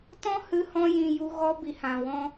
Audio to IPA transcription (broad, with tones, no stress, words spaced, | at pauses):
tɔ̃˦hɨ˧hɔ̃˧jĩ˨ ju˧ ɣɔ˦ bi˧hã˨wɔ̃˦